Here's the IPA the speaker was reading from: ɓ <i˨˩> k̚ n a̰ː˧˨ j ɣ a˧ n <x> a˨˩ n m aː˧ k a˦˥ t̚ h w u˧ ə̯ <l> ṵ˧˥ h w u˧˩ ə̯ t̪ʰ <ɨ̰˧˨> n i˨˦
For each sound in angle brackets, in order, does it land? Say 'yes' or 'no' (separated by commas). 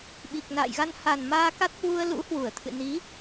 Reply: yes, no, yes, yes